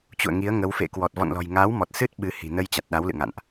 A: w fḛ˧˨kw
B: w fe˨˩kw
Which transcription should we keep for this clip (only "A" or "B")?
A